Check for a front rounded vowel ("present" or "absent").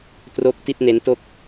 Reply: absent